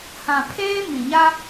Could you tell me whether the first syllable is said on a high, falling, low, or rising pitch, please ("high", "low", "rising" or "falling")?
low